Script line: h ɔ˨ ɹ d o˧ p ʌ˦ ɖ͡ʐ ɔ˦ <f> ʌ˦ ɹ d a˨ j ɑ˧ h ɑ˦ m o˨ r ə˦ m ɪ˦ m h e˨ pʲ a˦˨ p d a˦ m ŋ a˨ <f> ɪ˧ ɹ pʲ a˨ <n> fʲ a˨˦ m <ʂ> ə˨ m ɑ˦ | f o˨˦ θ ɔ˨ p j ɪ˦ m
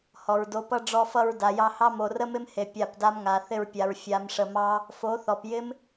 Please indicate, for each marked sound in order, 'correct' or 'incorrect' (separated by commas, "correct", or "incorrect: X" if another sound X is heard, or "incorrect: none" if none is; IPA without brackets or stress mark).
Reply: correct, incorrect: θ, incorrect: ɹ, correct